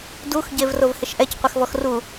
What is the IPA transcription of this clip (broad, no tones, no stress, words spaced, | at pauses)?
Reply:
dux ɟevrovhɪʃʔɛc qʷɪxvɔxru